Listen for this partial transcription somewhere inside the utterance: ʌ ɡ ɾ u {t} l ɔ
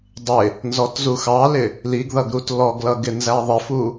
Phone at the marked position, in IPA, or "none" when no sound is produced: t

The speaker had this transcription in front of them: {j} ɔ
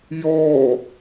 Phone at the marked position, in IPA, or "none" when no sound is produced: j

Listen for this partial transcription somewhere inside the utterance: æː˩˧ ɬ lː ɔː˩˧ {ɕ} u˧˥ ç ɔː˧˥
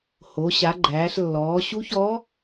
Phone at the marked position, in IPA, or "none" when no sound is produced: ɕ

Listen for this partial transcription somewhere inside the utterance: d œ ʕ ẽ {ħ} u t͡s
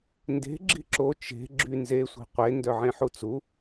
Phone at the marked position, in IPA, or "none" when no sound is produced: ħ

